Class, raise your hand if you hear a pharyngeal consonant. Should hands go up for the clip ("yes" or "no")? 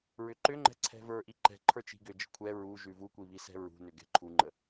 no